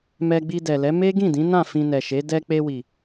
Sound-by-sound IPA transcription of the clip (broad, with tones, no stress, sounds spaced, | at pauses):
m ɛ˧ ɡ͡b i˧ d ɛ˨ l ɛ˨˦ m e˦ ɡ ĩ˦˨ d ĩ˨˦ n ã˦˨ f ĩ˧ n ɛ˨ ʃ e˨˦ d ɛ˧ k͡p e˧ w i˨